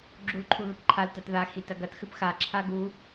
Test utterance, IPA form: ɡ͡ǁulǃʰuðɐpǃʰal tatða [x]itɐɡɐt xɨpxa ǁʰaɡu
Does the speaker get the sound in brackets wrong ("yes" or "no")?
no